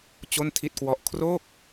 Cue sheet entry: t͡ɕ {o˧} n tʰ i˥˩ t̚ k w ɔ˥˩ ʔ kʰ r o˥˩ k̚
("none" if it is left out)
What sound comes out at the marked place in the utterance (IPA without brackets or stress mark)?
o˥˩